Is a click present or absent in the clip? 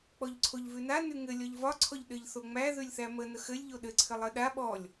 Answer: present